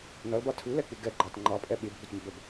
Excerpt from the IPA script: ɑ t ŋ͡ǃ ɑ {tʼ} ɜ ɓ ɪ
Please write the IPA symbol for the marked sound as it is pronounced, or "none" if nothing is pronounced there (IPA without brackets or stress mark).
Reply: pʼ